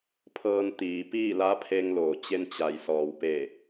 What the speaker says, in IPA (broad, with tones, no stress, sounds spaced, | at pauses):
pʰ ɤː˧ n t̪ iː˩˧ p iː˥˨ l a˧˥ pʰ e˧ ŋ l oː˩ t͡ɕ e˧ n t͡ɕ a˩ j s ɔː˩ w p e˧˩